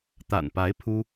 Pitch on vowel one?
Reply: low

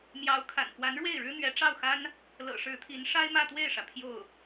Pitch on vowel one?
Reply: rising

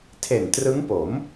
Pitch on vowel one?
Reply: low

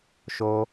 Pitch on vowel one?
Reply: high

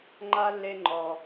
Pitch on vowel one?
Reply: high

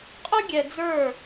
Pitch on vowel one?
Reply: high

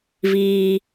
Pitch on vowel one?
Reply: low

